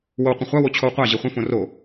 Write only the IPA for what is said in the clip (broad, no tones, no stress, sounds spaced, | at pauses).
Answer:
w o w qʷ ə̃ χʷ a w o t͡ɕʰ o w qʷ a ʑ i χʷ ə̃ f õ r o